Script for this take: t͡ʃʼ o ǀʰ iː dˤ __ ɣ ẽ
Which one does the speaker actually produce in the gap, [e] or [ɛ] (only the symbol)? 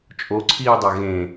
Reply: ɛ